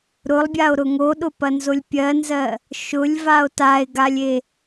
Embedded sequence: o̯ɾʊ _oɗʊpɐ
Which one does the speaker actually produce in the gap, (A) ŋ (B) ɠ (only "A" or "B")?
A